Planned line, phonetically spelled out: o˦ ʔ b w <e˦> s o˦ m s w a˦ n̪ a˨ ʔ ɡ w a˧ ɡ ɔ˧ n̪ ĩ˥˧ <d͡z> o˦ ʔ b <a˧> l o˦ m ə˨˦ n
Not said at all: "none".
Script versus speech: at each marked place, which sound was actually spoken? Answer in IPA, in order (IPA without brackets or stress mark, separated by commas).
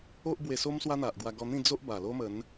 e˧, d͡z, a˨˩